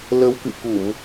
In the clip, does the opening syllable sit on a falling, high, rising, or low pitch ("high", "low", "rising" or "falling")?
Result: rising